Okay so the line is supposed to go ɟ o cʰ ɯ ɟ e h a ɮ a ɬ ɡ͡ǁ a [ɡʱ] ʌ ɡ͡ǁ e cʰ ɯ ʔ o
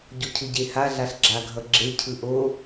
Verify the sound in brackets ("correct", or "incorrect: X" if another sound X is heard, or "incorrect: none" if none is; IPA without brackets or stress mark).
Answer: correct